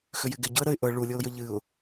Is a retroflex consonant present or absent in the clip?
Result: present